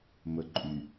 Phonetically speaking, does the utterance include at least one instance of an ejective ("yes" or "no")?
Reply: yes